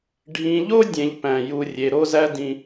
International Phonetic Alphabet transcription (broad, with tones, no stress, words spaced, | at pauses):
ɖʱĩ˨ʎo˥ dʲẽ˨ʎpæ̃˩ ju˨rʲe˩ ɾo˦zæ˦dĩ˨